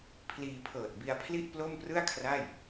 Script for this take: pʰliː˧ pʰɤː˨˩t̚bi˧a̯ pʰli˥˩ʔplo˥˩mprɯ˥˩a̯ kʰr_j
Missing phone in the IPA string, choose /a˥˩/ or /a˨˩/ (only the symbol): a˥˩